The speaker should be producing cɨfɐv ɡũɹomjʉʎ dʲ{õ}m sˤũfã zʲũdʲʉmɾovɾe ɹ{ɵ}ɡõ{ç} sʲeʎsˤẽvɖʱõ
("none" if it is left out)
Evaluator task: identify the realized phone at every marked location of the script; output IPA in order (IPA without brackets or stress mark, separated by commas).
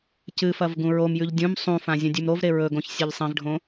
ũ, ɵ, ç